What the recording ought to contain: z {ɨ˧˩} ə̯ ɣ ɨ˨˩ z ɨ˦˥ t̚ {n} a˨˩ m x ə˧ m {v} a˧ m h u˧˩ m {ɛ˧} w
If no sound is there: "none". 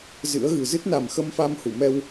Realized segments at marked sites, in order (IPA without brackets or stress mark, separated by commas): ɨ̰˧˥, n, f, ɛ˧